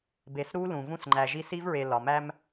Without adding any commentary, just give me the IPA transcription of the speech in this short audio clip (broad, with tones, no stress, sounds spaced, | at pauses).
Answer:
b e˨ s ɾ u˦ l ũ˨ v ũ˦ s ŋ͡ǃ æ˨ ʒ i˦ s i˦ v ɹ e˨ l ɒ˨ m æ˦ m